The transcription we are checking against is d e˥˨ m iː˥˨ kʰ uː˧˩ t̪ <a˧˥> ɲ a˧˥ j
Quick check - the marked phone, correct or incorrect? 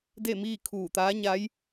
incorrect